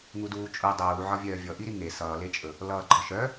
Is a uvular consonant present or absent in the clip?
absent